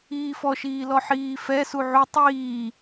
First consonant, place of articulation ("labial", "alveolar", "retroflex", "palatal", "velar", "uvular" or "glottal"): labial